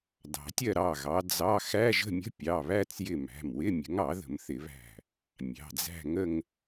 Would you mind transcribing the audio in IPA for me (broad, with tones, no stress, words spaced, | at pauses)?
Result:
dɑ̤˨˩˦tʲɜ˥˧ ɾɑ˩˧˩ɣɑ˨˦ d͡zɑ˧˥˧ xæ˧˥˧ʒə̤˥˧mʲə̤˧˥˧ pʲɑ˩˧˩βæ˥˧t͡sjɪ˧˩ mæ̤˩˧˩mwɪ˧˥˧ mʲə̤˨˦ŋɑ˨˩˦ðə̤˨˩˦m θɪ˨˩˦βæ̤˧˩ | mʲɑ̤˩˧˩d͡zæ̤˥˧ŋə˥˧ŋ